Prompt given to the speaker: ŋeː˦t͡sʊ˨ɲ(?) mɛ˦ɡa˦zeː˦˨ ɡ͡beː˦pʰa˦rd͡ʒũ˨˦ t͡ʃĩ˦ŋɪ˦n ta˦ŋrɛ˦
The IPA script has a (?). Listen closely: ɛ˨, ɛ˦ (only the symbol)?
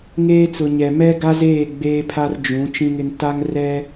ɛ˨